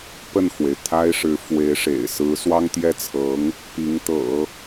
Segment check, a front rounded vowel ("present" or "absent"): absent